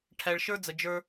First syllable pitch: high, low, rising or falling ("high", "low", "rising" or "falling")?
low